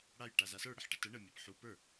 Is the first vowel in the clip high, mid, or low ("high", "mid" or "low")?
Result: low